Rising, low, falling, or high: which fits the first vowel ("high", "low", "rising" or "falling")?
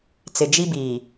low